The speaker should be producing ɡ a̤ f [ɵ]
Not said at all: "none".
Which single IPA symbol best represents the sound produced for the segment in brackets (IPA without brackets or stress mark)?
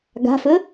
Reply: ɵ